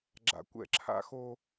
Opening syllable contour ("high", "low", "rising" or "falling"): low